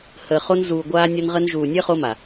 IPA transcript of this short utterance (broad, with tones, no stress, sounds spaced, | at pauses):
h əː˨ χ o˧ n z uː˨ ɡʷ aː˧ nʲ ɒ˧ n ʁ ə˧ n ʒ uː˨ nʲ əː˦ χ o˦ m a˨